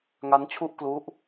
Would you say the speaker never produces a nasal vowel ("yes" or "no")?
yes